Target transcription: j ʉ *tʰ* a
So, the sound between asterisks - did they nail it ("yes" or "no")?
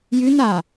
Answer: no